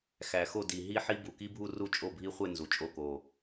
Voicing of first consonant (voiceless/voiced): voiceless